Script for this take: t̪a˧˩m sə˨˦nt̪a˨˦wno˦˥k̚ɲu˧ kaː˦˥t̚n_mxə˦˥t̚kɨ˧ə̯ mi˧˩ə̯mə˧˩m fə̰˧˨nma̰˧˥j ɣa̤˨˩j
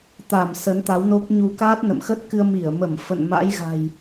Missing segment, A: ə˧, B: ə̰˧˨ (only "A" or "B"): B